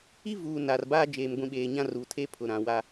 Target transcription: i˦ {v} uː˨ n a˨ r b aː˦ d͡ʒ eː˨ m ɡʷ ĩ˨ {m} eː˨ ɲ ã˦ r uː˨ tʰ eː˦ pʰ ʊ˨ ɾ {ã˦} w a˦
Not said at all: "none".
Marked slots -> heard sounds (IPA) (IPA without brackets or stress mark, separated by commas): v, ɓ, ã˨